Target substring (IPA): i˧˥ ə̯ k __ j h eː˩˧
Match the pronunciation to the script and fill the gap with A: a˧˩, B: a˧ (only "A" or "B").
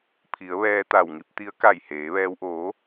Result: A